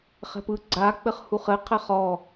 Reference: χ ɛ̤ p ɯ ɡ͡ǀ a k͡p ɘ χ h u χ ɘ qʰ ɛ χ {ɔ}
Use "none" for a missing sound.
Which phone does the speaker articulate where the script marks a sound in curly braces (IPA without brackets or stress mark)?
ɔ